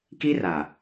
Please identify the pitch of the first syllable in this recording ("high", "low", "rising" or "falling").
high